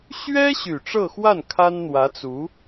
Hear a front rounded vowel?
yes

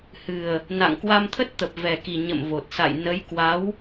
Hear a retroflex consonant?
no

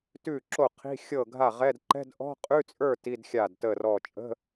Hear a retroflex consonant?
no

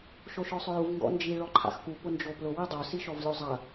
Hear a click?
yes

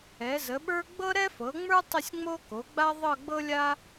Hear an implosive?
yes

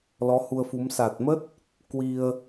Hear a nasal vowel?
no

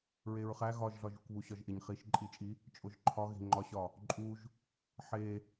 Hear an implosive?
no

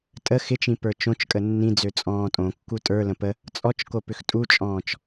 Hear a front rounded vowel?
yes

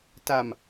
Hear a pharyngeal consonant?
no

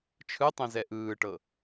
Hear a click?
no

